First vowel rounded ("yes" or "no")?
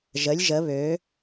no